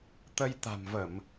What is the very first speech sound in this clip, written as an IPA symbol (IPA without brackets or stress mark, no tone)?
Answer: t̪